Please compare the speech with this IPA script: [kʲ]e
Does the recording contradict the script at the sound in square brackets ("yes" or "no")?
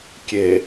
no